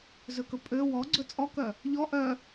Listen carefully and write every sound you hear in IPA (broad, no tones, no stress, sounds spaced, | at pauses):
z ɵ k ɵ pʼ ø w ɔ ɡ͡ǀ ɵ t͡sʼ ɔ k œ | ʎ ɔ ʔ œ